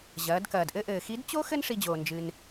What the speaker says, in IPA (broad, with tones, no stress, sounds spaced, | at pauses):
ʑ ɐː˩˧ d k ɐː˩ d ʔ ɘ˥ ʔ ɘː˩ x i˧˥ d t͡ɕ o˥ x ɘ˥ n ʂ i˧ d͡ʑ oː˩ n d͡ʒ ɨ˩ n